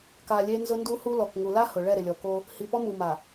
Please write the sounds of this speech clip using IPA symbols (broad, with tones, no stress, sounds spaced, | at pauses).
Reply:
k a˨ lʲ e˦ n z ʊ˦ n d u˦ h u˦ l ɔ˨ k ŋ u˨ l a˦ h ʊ˨ ɭ ɛ˦˨ ɾ ɪ˨ lʲ ɔ˨ k o˦ | h i˨ p ɔ˦ m u˨ m a˨